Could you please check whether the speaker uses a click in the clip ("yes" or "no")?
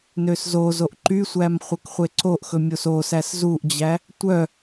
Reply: yes